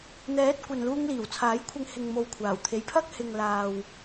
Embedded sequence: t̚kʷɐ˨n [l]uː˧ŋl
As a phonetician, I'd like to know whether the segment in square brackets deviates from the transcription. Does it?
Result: no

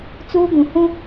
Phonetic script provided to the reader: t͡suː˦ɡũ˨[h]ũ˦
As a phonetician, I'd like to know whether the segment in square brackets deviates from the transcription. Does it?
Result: no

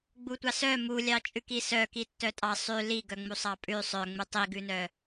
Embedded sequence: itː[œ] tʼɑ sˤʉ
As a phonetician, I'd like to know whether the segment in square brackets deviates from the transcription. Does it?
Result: no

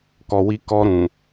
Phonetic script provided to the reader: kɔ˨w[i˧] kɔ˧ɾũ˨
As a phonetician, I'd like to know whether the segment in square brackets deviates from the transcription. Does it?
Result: no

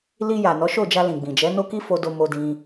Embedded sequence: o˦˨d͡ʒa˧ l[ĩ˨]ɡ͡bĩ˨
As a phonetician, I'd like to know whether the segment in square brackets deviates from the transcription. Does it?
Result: no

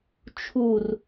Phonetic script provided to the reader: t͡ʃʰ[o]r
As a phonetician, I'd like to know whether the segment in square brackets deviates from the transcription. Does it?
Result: yes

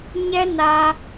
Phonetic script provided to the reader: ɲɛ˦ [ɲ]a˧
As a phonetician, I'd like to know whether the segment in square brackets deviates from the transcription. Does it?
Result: yes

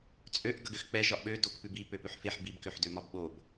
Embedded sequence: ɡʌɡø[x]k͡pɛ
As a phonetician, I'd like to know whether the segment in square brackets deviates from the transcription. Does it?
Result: no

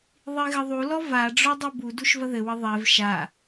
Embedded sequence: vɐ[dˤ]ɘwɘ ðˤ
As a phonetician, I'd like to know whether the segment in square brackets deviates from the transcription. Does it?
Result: yes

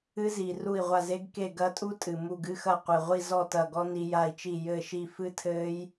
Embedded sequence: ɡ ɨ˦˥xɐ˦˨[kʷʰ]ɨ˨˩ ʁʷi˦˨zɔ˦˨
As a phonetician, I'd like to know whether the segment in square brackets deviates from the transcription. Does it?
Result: yes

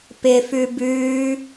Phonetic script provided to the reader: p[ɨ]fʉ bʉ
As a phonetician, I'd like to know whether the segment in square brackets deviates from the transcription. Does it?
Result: yes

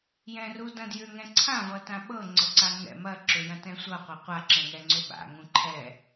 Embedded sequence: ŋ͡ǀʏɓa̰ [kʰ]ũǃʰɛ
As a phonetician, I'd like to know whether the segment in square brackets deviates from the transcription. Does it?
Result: yes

